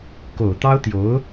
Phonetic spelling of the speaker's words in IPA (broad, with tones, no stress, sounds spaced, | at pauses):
k o˨˩ ʊ̯ t̪ ɑ˥ ʊ̯ t̪ j o˧˥ ʊ̯